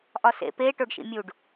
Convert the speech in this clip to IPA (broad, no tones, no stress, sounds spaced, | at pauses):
ʔ ɒ s ḛ p e ʈ o ɖ ʃ ḭ mʲ u ɖ